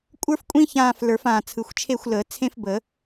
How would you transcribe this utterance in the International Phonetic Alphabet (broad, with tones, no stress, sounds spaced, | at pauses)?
kʷʼ ə˞˥ f kʷʼ ĩ˥ ç ãː˦˨ f l ə˞˨˩˦ f ãː˨˩ t͡sʰ ɯ˨˩ xʷ t͡ʃʰ e˦˨ xʷ l əː˨˩˦ t͡sʰ ẽ˥ f b ə˨˩˦